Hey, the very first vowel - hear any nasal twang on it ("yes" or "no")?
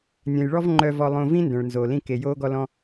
yes